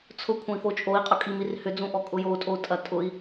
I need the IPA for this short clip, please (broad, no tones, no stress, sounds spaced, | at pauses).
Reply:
t͡sʰ ʊ kʷʰ ɐ̃ i̯ f o t͡ʃʼ o i̯ qʼ ʊ kʼ i m i r h ʏ d͡z ũ ʔ ɔ kʼ ʊ j o u̯ tʼ o u̯ tʼ ɐ tʼ ʊ i̯